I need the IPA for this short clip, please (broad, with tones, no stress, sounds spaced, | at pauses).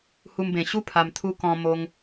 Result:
h u˧ m b ẽ˨˩ ɕ u˥˧ pʰ a˨˩ m t̪ʰ u˧ k ɔ̃˧ m o˧ ŋ